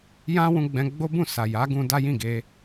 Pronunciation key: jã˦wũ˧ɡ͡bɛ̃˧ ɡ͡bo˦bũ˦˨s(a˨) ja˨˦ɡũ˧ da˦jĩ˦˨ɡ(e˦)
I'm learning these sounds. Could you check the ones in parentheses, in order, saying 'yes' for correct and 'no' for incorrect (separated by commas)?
yes, no